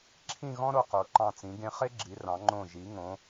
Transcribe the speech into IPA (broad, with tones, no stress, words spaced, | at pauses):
ǁʰĩ˥˧ɣɔ̃˥ɾo˧ qo˩˧ǃɑ̃˧˩t͡sĩ˩˧ ɡẽ˧χe˥ɡ͡ǁi˩˧ rɑ̃˩˧ŋ͡ǃõ˧˩ ʒi˩˧ ŋõ˩˧